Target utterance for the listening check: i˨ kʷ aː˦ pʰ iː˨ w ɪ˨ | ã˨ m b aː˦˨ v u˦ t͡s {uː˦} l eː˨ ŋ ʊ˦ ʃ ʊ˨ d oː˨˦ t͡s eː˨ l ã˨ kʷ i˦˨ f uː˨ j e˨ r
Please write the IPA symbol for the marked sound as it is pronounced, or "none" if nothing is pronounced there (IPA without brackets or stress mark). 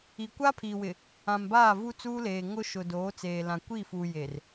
uː˦